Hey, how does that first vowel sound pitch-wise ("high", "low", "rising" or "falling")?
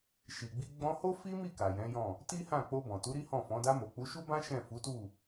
low